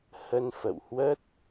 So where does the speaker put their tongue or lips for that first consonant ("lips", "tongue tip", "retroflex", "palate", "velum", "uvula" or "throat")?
throat